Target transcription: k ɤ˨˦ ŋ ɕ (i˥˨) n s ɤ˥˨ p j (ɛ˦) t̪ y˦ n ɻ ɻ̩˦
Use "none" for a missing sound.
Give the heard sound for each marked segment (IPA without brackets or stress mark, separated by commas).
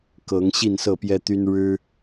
i˥˨, ɛ˦